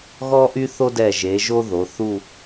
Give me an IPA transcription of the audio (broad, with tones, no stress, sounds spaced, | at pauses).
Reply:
ɣ ɔ˥ ʔ y˥ θ o˥ d ɛ˧˩ ʒ e˩˧ ʒ o˥ ð o˩˧ θ u˥˧